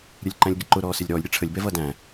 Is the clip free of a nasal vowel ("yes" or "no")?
no